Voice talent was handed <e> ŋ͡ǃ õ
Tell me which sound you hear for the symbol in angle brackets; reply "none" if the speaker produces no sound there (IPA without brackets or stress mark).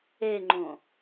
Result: e